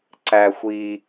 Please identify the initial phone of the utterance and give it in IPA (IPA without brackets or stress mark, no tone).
ǀ